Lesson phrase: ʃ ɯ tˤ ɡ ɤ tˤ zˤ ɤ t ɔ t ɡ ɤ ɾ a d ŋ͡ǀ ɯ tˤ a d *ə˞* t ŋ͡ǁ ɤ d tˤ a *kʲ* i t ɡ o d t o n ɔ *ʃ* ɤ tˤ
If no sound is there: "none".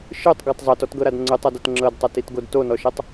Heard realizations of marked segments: ɤ, t, ʃ

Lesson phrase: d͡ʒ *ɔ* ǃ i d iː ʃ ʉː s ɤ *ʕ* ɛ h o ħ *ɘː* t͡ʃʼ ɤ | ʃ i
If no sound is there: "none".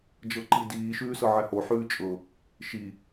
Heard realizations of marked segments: ɤ, ʕ, ʉː

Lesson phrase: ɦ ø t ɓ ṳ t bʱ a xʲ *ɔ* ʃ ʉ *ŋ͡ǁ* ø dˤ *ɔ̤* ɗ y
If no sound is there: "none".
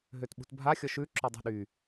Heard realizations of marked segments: ɔ, ǁ, ə̤

